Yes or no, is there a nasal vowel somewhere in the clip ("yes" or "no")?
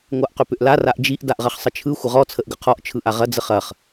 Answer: no